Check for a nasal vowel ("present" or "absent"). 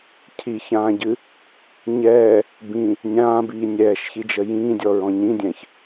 present